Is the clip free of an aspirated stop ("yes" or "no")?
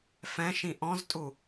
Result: yes